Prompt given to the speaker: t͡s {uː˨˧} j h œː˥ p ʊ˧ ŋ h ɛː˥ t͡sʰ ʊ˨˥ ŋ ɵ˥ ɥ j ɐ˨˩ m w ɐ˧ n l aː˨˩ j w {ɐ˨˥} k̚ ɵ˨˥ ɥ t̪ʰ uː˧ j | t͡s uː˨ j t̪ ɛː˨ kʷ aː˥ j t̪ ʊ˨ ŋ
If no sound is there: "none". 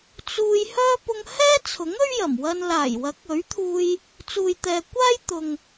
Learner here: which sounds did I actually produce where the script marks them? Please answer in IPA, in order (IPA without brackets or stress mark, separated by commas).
uː˧, ɐ˨˥